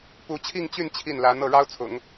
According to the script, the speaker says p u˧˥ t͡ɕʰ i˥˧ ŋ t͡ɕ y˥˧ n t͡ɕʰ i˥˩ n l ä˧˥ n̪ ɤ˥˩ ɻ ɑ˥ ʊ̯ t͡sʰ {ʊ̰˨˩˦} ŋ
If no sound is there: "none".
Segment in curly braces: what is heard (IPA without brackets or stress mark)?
ʊ̰˨˩˦